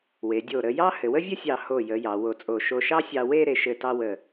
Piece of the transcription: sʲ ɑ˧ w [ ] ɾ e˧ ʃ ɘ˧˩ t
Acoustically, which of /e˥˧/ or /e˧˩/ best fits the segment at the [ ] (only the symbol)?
e˥˧